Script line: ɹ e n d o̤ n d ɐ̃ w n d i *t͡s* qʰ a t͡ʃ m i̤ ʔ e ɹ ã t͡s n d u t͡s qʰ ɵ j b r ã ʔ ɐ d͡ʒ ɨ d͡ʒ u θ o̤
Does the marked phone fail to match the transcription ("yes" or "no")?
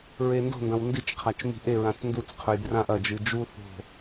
yes